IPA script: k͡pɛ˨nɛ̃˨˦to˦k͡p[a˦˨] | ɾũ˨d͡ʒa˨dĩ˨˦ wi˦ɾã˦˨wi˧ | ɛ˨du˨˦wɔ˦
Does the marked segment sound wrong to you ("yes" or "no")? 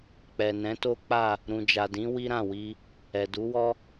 no